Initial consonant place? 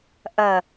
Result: glottal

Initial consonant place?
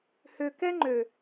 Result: glottal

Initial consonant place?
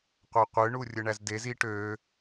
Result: uvular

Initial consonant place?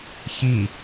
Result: palatal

